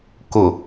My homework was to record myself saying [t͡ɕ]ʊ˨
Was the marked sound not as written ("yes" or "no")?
yes